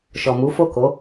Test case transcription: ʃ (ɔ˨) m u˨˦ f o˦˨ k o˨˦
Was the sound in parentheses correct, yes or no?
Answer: yes